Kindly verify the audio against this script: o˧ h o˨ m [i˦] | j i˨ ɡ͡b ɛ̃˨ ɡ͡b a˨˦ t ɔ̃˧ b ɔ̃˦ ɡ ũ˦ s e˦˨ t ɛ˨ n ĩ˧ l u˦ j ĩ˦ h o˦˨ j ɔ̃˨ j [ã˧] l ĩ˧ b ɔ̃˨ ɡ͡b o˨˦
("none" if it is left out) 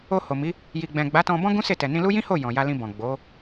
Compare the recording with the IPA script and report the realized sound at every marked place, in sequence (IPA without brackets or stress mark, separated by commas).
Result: i˨˦, a˧